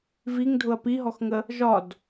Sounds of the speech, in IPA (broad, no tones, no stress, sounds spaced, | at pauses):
v i ŋ dʱ ʊ ɐ̯ p i ɦ ɔ x ŋ ə | ʒ ɒ d